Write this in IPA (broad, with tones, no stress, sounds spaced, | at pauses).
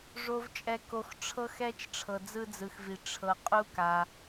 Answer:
ʐ o˨ v t͡ʃʼ ɛ˨ k o˨ x ʈ͡ʂʰ ɤ˦ x ɛ˦ t͡ʃ ʈ͡ʂʰ ɤ˨ d͡z ɯ˦ d͡z ɯ˨ x v i˨ ʈ͡ʂʰ ɤ˨ qʼ u˦ k a˨